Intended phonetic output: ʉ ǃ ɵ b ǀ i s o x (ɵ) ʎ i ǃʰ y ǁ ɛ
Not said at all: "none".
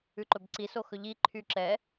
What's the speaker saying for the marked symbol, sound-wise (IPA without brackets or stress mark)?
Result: ɵ